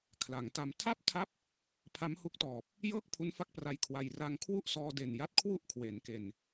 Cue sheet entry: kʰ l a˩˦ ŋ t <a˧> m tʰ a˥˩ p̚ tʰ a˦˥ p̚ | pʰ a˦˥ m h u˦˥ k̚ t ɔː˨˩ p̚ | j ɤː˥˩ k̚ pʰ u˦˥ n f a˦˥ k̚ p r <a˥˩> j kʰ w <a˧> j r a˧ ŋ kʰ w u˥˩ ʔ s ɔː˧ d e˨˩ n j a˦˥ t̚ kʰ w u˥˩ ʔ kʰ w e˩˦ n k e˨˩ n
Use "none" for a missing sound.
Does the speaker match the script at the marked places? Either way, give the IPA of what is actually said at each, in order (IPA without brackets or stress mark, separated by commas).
a˧, a˦˥, a˧